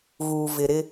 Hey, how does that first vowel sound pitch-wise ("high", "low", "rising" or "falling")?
low